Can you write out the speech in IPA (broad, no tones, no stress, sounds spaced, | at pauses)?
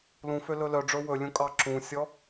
l ũ f ø l ɵ l œ ɖ͡ʐ ɵ w ɵ lʲ ũ kʼ ɑ ǁ ũ sʲ ɔ